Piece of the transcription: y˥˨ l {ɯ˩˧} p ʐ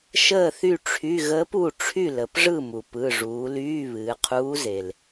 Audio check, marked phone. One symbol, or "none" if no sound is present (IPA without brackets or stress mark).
ə˩˧